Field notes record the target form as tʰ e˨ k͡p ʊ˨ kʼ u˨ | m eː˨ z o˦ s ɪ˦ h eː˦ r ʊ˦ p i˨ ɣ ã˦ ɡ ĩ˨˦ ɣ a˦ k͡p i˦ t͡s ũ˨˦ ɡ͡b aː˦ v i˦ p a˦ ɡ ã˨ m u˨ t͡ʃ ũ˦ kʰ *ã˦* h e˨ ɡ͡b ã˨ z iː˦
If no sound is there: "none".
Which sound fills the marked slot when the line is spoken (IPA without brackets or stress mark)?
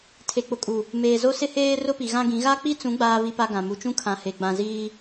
ã˨